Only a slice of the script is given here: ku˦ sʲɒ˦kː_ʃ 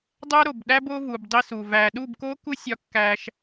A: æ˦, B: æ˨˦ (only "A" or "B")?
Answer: A